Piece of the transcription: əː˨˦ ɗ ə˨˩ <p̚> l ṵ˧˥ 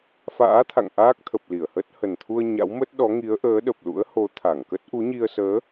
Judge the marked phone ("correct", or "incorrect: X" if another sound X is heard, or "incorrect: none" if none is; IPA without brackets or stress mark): correct